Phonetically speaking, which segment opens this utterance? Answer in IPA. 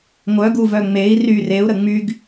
ŋʷ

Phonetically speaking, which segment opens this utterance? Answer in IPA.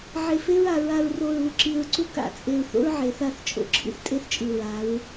ʕ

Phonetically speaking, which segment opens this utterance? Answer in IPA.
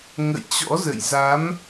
ŋ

